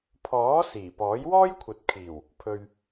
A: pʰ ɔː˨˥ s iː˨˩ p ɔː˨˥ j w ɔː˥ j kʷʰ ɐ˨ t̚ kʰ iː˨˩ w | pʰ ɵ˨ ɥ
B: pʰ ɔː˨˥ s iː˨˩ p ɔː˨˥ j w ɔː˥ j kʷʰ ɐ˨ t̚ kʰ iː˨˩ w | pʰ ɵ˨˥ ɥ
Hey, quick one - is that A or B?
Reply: A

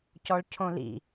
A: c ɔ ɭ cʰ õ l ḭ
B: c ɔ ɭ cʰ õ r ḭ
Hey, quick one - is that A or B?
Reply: A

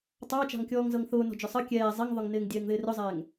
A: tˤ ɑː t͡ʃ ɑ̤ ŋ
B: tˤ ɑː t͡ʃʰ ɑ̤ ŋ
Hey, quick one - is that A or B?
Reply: A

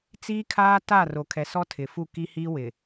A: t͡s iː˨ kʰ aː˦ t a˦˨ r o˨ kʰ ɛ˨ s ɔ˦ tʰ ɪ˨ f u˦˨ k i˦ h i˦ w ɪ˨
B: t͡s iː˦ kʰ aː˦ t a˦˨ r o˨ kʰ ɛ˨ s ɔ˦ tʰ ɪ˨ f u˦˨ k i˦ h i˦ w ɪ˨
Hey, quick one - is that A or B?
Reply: B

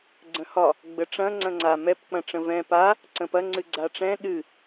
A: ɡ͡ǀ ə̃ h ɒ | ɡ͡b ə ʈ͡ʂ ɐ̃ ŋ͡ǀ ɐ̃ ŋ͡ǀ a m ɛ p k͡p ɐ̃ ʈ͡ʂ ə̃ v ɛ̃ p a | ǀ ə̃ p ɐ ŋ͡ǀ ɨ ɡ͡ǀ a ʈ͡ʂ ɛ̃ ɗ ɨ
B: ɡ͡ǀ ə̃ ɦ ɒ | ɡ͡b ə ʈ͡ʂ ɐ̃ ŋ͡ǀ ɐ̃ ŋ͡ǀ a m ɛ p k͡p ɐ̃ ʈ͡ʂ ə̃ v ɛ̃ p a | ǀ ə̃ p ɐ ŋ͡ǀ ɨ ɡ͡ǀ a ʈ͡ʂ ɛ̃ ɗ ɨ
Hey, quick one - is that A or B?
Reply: A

